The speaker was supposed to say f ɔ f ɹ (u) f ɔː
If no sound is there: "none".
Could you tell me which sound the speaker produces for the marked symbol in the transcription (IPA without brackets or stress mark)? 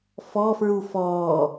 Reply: u